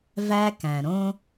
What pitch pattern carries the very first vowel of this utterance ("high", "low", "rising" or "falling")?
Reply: high